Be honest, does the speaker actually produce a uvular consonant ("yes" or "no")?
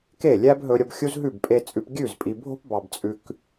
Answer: no